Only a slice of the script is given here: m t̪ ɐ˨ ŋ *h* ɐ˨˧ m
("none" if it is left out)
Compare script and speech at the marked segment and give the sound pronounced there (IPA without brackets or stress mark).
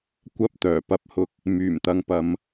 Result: p